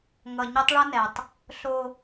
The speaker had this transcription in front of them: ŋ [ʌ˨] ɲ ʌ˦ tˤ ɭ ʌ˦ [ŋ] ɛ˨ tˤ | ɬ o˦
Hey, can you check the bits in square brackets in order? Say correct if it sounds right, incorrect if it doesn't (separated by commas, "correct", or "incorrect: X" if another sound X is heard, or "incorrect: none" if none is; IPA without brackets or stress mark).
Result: correct, incorrect: n